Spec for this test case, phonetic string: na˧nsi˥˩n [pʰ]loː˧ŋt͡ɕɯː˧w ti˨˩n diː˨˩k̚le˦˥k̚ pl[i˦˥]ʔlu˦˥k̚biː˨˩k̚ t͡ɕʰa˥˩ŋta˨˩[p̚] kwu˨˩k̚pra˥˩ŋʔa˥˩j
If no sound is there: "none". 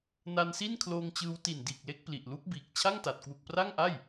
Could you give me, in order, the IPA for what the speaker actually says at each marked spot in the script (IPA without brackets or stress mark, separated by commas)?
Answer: kʰ, i˨˩, t̚